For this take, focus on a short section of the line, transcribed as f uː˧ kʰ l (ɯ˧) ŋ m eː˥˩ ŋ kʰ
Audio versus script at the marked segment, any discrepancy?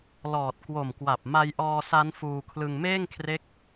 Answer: no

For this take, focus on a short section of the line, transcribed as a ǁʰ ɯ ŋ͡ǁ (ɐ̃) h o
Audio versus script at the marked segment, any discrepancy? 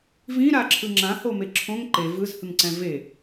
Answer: yes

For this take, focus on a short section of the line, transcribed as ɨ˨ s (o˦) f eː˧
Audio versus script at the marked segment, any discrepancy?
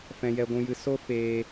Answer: no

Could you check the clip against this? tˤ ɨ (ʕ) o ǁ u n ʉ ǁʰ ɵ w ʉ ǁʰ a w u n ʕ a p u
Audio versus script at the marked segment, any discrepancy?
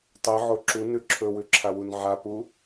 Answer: no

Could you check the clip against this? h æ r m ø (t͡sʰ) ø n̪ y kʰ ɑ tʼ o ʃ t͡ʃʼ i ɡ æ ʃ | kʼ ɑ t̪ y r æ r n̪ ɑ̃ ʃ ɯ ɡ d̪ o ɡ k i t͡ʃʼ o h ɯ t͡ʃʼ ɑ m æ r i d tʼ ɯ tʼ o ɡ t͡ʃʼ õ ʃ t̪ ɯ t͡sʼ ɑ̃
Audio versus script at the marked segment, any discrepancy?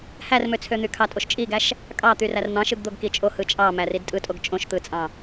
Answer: no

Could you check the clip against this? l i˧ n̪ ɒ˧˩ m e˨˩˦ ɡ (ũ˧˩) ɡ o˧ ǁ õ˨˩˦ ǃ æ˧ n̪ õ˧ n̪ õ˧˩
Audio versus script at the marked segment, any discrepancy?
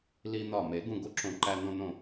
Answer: no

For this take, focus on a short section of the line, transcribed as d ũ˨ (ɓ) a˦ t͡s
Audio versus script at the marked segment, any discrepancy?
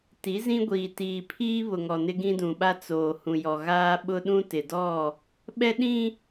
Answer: no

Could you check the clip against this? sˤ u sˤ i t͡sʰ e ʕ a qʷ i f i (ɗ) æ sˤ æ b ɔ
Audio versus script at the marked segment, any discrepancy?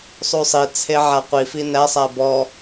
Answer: yes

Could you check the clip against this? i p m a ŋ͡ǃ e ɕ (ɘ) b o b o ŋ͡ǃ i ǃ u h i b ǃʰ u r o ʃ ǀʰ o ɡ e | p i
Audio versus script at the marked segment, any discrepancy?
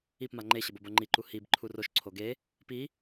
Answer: no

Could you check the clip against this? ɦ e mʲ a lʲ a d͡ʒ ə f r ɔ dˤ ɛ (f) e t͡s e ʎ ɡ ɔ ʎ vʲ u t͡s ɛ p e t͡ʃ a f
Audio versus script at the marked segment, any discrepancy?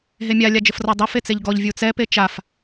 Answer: no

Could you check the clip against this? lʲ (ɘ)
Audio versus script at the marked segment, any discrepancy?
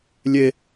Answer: yes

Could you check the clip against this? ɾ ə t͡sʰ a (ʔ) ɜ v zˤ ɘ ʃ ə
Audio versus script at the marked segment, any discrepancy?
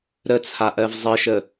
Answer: no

